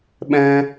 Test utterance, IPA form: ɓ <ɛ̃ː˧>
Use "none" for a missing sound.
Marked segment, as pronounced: ɛ̃ː˧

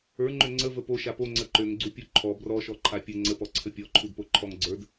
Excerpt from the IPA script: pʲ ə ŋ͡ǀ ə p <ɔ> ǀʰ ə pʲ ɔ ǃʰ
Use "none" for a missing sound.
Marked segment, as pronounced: ɔ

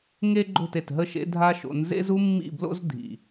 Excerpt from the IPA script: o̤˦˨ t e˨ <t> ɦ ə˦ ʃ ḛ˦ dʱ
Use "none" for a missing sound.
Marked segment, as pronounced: t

